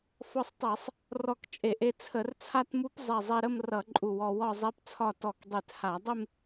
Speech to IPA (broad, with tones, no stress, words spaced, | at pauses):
fɔ˧sˤtˤe˧˩˧sˤ | rɔ˧˩kt͡ʃʼe˧˩˧ʔe˧ t͡sʰə˧˩˧rt͡sʰa˥˧tmu˦˥pzˤɛ˧˩ zˤe˧ɾə˥˧mrʌ˧˩˧ ǃʼu˧˩wɔ˧ wɒ˥˧zˤe˦˥pt͡sʰɒ˥˧ tɔ˧˩kdˤe˧˩tha˧˩˧ dˤɪ˥˧m